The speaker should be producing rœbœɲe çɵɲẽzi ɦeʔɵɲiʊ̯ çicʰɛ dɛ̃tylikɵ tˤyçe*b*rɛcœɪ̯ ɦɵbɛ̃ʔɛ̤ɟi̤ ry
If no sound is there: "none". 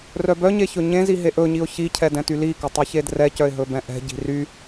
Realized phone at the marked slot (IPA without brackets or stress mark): d